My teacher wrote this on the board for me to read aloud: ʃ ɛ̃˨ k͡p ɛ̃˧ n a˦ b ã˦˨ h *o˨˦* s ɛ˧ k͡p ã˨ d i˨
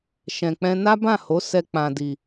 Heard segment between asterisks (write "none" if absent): o˨˦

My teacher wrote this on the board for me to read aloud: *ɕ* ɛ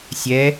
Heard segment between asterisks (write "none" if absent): sʲ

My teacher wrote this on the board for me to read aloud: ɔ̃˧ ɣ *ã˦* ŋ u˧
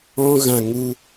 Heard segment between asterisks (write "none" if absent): ã˨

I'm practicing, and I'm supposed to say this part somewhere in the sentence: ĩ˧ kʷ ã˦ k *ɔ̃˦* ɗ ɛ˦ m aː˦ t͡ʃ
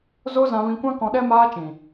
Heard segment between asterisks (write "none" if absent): ɔ̃˧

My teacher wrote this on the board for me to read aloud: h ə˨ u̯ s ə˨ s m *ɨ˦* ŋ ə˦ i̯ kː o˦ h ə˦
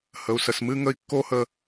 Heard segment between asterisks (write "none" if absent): ɨ˦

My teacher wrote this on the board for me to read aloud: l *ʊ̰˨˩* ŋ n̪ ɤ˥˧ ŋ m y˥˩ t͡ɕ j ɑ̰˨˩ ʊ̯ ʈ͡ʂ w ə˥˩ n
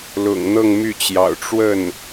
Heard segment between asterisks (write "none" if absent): ʊ̰˨˩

